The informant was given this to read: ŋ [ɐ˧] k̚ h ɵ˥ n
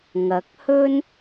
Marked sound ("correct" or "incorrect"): incorrect